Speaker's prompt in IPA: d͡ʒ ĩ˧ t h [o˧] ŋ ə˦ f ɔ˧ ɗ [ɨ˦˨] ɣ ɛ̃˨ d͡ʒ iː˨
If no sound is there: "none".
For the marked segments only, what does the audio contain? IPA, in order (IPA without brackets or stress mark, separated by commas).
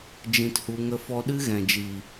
u˧, ɨ˦